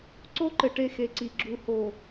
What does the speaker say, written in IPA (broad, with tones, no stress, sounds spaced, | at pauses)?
ǀ o˦ ǃ ɘ˨ ʈ e˦ x e˨ ǀ i˨ ɡ͡ǁ u˨ h o˨